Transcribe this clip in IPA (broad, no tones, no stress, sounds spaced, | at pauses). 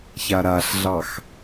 ç a ɾ a ɬ ɮ ɑ x